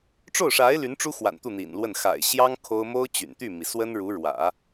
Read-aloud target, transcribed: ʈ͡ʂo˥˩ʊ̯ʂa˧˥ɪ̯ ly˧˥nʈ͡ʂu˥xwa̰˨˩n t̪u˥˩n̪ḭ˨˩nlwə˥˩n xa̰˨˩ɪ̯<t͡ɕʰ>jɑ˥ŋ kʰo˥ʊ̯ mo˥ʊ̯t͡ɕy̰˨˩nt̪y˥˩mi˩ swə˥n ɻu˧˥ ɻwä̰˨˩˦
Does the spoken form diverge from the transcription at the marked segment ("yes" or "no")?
yes